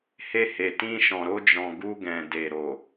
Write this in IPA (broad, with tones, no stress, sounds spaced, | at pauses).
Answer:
h e˧ h e˨ t ĩ˧ ʃ ɔ̃˨ ɾ o˧ d͡ʒ ɔ̃˨ ɡ u˧ ɡ ɛ̃˨ d e˨ ɾ o˨